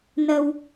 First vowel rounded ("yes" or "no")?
no